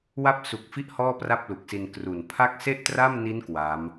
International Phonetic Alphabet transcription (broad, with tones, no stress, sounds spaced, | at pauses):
w a˥˩ p̚ s u˨˩ k̚ f i˥˩ ʔ h ɔː˥˩ p r a˥˩ p̚ l u˨˩ k̚ s i˧ n k r u˨˩ n pʰ a˥˩ k̚ s e˥˩ ʔ t r a˥˩ m n i˦˥ n k w a˦˥ m